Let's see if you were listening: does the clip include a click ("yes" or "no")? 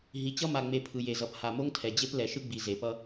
no